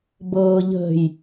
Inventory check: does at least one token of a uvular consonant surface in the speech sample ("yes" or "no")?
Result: no